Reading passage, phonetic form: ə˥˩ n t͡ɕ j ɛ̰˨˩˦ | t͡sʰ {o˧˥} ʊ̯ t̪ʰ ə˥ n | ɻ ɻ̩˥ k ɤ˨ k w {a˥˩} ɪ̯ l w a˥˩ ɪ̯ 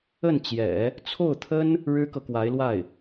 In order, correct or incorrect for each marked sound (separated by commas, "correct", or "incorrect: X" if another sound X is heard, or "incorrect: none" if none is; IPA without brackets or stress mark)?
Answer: incorrect: o˥˩, incorrect: a˧˥